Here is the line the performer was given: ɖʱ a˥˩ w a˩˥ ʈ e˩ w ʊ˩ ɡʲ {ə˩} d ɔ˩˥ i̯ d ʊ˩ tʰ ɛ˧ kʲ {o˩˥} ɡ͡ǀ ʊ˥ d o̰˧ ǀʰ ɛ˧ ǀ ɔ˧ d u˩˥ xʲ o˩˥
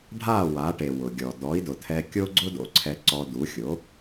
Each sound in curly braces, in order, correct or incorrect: incorrect: ɔ˩, incorrect: o˥

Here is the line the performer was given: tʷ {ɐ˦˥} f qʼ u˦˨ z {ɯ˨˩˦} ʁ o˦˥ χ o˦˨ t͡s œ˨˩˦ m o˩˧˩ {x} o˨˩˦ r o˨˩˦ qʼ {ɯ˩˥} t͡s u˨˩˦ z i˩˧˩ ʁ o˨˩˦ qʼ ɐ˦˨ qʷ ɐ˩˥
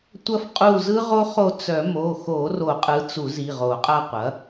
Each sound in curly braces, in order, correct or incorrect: correct, incorrect: ɯ˦˥, correct, correct

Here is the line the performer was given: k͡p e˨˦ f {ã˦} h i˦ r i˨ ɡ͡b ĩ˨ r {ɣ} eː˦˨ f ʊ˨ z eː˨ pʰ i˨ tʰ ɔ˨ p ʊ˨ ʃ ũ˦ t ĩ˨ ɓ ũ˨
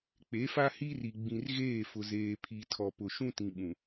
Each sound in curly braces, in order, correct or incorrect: incorrect: a˦, correct

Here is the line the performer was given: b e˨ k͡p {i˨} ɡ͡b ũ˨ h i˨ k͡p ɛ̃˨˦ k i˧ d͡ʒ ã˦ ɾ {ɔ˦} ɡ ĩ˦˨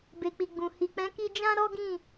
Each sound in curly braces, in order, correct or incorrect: correct, correct

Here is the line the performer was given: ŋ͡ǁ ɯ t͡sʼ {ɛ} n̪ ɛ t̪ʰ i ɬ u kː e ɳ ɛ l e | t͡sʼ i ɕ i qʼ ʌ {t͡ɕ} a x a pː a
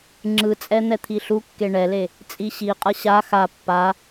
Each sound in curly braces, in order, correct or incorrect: correct, incorrect: ɕ

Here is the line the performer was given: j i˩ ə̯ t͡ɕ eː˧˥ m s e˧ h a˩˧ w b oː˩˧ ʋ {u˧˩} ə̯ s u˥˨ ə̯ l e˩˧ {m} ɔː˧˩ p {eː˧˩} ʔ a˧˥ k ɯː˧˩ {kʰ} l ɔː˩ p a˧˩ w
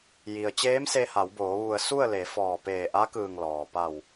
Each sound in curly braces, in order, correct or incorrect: correct, incorrect: f, correct, incorrect: ŋ

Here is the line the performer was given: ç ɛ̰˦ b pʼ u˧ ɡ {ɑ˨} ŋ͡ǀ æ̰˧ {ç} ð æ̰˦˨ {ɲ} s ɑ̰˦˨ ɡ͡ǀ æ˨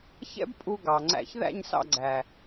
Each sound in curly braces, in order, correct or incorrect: correct, correct, correct

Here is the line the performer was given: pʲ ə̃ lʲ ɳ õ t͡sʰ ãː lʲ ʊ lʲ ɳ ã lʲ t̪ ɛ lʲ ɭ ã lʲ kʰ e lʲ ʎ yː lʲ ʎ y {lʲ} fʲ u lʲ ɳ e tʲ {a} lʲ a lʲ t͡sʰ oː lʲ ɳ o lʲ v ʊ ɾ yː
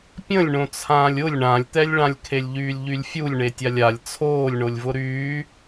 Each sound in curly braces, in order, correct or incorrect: correct, correct

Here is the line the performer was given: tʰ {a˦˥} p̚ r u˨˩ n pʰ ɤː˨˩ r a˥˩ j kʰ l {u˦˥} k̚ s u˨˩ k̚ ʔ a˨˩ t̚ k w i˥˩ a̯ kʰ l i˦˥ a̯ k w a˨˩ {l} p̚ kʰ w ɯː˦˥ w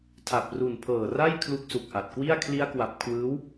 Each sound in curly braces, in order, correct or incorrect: incorrect: a˨˩, correct, incorrect: none

